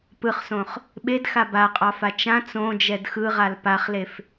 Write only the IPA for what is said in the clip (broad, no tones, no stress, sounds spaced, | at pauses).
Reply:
p ɯ χ s õ χ | ɓ e d x a b a qʼ ɑ f a t͡ʃ ã t͡s õ d͡ʒ ɛ d x ɯ ʁ a l p a χ l e f